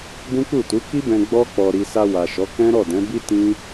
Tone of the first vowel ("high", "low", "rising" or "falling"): high